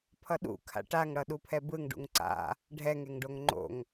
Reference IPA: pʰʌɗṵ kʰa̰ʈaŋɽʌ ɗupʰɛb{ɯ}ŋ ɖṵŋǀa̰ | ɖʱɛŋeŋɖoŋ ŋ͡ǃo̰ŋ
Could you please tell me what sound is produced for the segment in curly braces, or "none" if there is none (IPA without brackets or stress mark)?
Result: ɯ